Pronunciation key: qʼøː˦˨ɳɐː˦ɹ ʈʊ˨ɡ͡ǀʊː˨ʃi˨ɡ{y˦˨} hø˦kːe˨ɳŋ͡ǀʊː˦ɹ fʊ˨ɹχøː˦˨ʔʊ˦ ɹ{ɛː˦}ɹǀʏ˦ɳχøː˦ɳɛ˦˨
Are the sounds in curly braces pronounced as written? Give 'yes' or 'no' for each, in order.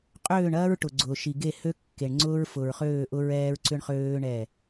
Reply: no, yes

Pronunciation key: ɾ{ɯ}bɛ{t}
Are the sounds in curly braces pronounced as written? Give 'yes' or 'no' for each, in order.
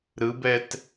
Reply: yes, yes

